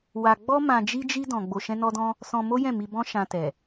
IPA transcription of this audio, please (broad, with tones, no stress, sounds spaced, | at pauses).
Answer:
w a˧ ɡ͡b ɔ˦ m ã˧ d͡ʒ i˦ d͡ʒ i˦ d ɔ̃˧ ɡ͡b o˧ ʃ ɛ̃˦ n ɔ˦ d ɔ̃˦ | s ɔ̃˧ m o˦ j ɛ̃˦˨ m i˧ b ɔ̃˦ ʃ ã˧ t ɛ˨